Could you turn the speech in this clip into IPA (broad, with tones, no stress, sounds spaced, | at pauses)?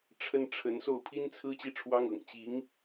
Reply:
ʈ͡ʂʰ ə˥ n ʈ͡ʂʰ ə˧˥ n s o˥˩ ʊ̯ pʰ i˥ n t͡sʰ ɹ̩˥ t͡ɕ i˥˩ ʈ͡ʂʰ w ɑ˥ ŋ ɤ̰˨˩ ŋ t͡ɕ i˧˥ ŋ